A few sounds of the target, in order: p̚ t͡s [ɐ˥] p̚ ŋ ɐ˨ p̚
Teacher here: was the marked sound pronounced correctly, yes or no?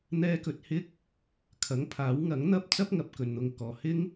yes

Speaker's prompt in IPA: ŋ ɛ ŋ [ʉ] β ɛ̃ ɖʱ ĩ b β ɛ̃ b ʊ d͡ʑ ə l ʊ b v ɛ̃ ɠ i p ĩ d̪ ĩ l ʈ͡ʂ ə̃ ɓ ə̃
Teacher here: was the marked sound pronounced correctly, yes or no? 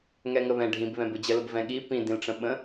no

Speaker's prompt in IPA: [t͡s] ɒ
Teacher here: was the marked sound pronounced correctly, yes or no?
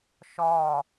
no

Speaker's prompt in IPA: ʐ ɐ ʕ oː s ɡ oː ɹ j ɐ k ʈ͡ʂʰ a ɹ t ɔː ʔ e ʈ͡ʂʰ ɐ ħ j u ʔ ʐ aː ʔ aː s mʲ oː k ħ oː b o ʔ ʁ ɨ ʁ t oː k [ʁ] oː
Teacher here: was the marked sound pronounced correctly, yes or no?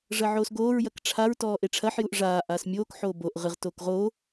yes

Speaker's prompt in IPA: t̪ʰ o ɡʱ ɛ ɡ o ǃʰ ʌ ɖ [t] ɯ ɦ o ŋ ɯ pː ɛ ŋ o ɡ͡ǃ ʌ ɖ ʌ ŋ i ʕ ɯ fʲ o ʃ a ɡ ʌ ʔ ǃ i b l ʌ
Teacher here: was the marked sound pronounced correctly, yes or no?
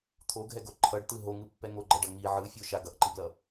yes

